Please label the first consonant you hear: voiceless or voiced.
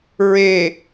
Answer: voiced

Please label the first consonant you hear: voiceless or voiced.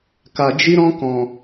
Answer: voiceless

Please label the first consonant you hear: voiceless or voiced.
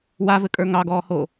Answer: voiced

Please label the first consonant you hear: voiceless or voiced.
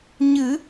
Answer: voiced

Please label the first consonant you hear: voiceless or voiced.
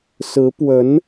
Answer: voiceless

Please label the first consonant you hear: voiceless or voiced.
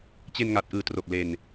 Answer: voiceless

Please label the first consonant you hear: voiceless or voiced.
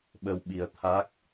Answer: voiced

